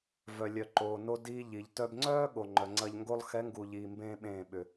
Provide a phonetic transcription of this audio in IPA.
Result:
v œ˨ lʲ œ˨ ǃ oː˨ n o˧ d iː˧ ʎ i˨ ʎ t œ˧ b ŋ͡ǀ œː˦ ɠ o˨ ŋ͡ǃ œ˨ ŋ͡ǀ ɐ˧ ʎ ŋ ɡ o˧ lˠ x ɛ˨˦ ŋ ɡ u˨ ʎ iː˧ m b ẽː˦ ɓ ẽː˦˨ ɓ ʏ˨

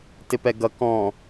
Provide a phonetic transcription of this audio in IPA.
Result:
t ɪ p ɛ ɡ ʌ k ɔ̃

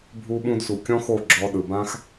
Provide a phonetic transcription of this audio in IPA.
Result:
bʱ u˧ ɓ ũ˧ d s u˨ kʲ ɔ̃˦ x o˦˨ ɡ͡ǁ ɔ˧ ɗ ɯ˨ b ã˦ x

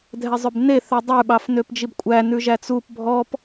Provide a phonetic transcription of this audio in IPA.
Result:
dʱ ɛ zˤ ø b n e θ œ dˤ ʉ ɓ ɑ f n ø p d͡ʒ i b kʷʼ æ n ʉ ʒ æ t͡s u p bʱ ɔ p

